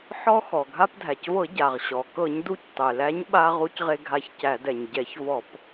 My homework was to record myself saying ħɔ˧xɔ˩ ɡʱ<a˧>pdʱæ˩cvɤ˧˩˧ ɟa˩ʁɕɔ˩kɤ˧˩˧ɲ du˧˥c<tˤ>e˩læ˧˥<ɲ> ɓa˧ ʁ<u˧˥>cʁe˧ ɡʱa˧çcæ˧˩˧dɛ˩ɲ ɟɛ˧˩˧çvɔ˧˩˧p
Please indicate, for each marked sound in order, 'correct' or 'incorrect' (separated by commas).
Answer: correct, correct, correct, correct